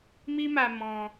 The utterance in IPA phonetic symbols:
m i˦ m a˧ m ɔ̃˧

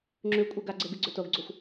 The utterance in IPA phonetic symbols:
ŋ͡ǁ ʉ kʷʼ e ɡ a ɡ͡ǀ e ɡ ɨ ɡ͡ǀ ɵ t o ɡ ɡ͡ǀ o xʷ

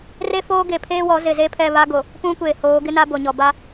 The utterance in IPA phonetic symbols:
r e˦ f oː˦ ɡ e˨ pʰ eː˦ w ɔ˨˦ z ɪ˨ z e˦ pʰ ɛ˦˨ β a˦ ɡ o˨ | p ũ˦ kʷ eː˨ h oː˨˦ ɡ ɪ˦ n a˦ b o˨ ɲ ɔ˨ b a˦

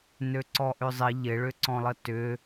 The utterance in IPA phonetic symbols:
n ø ǀ ɔ ʔ ʏ zˤ ɪ ʎ ɪ ɭ ʏ ǀ ɔ̃ lˠ ə t ʏ

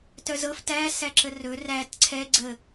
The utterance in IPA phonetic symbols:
t œ z ɤ f t æ s æ ǁ ə r ɵ r æ t ǀʰ ɛ ɡ͡ǀ ə

